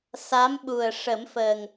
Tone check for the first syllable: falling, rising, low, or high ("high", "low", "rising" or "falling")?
rising